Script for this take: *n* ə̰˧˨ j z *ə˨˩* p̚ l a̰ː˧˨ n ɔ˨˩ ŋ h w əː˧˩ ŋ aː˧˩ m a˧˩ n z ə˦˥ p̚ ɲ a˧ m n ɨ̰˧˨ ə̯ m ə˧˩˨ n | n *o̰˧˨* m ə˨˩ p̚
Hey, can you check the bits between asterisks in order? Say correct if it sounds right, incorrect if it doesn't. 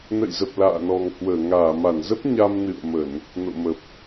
correct, correct, correct

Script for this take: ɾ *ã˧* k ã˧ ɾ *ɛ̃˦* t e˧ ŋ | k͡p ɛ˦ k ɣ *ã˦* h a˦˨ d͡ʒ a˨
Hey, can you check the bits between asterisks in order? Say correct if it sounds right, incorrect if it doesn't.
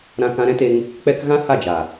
correct, correct, correct

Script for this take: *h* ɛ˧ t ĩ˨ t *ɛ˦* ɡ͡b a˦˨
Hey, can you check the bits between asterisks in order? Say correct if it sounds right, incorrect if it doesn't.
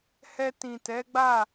correct, incorrect: ɛ˨˦

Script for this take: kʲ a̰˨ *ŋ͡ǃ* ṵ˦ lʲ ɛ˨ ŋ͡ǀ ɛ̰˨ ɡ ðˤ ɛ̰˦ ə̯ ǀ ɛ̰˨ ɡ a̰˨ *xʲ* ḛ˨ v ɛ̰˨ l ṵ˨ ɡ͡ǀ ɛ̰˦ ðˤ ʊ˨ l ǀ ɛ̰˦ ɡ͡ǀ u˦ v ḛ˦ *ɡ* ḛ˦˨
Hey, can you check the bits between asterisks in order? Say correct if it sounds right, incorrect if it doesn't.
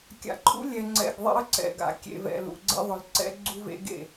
incorrect: ǃʰ, incorrect: kʲ, correct

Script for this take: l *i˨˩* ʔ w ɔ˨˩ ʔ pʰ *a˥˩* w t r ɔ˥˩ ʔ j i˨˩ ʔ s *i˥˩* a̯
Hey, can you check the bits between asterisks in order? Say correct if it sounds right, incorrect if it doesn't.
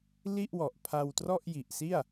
incorrect: i˥˩, incorrect: a˧, correct

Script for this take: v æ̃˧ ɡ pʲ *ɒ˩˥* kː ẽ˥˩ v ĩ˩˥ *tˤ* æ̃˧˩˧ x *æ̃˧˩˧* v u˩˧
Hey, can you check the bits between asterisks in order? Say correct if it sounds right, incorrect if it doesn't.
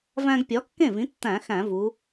correct, incorrect: tː, correct

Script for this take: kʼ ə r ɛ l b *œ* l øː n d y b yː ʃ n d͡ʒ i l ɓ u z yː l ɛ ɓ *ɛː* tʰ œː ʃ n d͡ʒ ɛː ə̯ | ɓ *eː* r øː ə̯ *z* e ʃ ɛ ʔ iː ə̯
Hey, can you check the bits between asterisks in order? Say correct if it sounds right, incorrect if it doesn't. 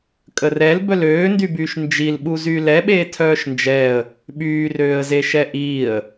correct, incorrect: eː, incorrect: yː, correct

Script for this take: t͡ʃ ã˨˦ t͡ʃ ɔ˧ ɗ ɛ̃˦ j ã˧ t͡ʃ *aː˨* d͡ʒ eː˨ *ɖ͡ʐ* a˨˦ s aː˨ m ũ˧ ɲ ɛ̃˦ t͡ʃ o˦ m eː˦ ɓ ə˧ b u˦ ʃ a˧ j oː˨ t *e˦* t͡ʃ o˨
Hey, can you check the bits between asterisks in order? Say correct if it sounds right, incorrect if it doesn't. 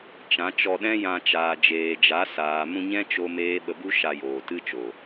correct, incorrect: d͡ʒ, incorrect: ɨ˦

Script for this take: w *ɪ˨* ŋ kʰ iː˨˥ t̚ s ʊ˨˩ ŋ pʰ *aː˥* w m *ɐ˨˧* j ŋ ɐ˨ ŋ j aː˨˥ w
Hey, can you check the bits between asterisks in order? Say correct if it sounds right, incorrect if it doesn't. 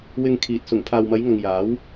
correct, incorrect: aː˨, correct

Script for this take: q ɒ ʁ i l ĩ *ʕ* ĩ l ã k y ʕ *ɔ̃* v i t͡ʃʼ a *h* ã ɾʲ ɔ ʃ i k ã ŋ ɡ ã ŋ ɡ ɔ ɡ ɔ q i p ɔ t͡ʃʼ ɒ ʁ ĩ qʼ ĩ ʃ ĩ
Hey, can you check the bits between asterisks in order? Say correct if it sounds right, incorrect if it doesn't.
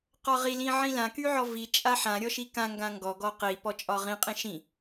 correct, incorrect: ɔ, incorrect: ħ

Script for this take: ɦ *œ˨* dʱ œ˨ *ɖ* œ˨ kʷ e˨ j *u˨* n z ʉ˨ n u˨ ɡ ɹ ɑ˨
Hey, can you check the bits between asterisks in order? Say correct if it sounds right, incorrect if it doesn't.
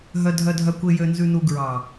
correct, incorrect: dʱ, incorrect: ø˨

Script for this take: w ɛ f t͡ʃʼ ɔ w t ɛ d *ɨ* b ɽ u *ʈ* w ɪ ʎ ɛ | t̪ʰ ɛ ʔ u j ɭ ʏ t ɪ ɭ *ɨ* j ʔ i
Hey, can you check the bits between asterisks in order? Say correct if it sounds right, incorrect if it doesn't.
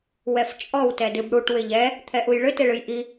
correct, correct, correct

